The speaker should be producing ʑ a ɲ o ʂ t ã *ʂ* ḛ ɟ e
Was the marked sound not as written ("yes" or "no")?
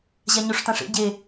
no